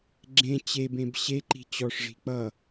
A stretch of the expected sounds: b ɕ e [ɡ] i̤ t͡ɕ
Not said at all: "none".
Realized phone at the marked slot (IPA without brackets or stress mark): ǃ